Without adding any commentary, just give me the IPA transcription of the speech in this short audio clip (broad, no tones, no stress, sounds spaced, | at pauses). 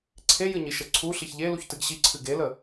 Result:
ǀʰ e j ɨ ɲ i ʃ ə ǀʰ u ɬ i ç ʎ e l u ç t ɨ ɡ ɕ i ǀʰ ɨ ɡ e l ə